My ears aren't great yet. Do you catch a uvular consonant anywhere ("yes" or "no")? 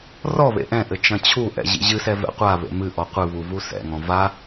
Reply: yes